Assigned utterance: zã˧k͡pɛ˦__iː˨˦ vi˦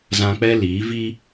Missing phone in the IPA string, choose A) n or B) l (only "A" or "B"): B